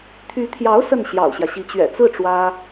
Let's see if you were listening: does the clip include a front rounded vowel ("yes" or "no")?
yes